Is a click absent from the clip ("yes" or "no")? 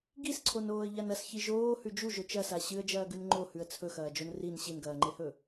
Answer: no